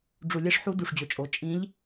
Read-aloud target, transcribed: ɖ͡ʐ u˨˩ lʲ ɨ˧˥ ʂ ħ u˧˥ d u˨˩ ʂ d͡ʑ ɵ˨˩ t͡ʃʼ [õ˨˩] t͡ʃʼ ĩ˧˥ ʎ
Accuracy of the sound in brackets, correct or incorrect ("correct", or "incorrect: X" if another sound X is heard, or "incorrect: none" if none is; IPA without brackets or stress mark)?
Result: incorrect: o˨˩